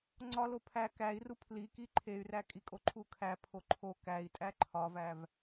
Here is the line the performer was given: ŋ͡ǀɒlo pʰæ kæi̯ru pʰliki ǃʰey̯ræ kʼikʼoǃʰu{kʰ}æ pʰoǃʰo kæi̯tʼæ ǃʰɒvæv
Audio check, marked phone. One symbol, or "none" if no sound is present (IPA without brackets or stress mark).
kʰ